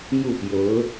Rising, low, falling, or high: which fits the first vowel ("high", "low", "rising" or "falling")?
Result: falling